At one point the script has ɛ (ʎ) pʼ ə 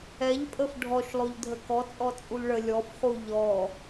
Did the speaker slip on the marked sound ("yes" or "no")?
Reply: no